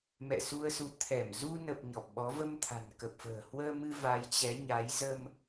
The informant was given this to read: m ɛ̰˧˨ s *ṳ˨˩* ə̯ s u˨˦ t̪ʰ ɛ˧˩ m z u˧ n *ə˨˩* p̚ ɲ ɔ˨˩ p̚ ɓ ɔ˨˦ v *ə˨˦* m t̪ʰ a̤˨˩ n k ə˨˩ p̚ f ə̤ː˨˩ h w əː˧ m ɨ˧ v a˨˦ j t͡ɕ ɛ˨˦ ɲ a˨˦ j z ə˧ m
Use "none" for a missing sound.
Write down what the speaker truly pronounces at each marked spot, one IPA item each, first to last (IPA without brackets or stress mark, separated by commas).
u˧, ə˨˩, ə˧